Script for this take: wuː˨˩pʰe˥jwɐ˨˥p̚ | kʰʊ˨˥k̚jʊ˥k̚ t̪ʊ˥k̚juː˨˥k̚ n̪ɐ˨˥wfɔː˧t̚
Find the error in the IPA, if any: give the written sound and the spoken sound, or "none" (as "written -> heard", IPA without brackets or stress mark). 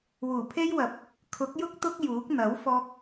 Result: t̚ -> k̚